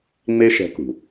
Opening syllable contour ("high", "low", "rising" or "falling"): high